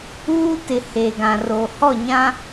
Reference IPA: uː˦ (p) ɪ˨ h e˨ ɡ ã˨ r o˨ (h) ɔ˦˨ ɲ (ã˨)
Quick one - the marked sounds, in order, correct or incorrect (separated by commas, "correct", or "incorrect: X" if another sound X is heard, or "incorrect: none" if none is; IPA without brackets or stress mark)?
incorrect: t, correct, incorrect: ã˦